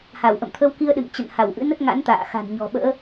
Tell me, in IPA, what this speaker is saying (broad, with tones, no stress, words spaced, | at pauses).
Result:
ha˧˩w ʔə̰˧˨mt̪ʰə˧wki˧ə̯ ɗɨ̰˧˨ŋt͡ɕə̰˧˨n ha˧˩wʔɨ̰˧˥nə˦˥t̚ŋa̰˧˥n t̪a̰ː˧˨xa̤˨˩n ɲɔ̤˨˩ɓə̰ː˧˥